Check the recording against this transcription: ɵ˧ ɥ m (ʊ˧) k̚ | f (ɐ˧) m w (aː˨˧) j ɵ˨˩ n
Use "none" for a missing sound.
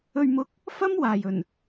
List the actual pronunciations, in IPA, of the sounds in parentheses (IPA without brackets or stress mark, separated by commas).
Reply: ʊ˧, ɐ˥, aː˨